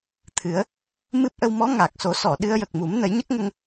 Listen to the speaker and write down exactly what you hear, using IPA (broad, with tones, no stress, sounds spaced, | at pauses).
t̪ʰ ɨ˨˩˦ ə̯ | m ɨ˦˥ p̚ ʔ ə˧ w m ɔ˧˥ ŋ a˨˩ k̚ s o˨˩˦ s ɔ˨˩˨ ɗ ɨ˧ ə̯ j ə˨˩ k̚ m u˨˩˦ m n ə˨˩˦ j ɲ ə˦˥ k̚ ŋ ə˧ ŋ